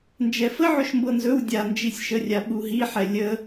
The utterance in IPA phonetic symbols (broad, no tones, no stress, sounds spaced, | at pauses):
n d͡ʒ ɛ f ə ʕ ɵ ʃ m b ɤ n z ɵ w dʲ a n d͡ʒ i sʲ ʃ ə rʲ a ɓ u ɦ i ħ ɛ lʲ ə